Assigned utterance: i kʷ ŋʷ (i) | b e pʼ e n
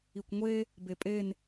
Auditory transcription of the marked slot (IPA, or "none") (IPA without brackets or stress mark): e